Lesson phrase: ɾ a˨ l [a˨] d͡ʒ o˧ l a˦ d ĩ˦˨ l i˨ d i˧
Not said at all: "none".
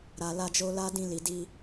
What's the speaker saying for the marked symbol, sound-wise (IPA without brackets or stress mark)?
a˧